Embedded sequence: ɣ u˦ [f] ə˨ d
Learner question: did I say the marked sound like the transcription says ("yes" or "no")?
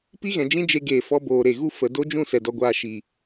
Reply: yes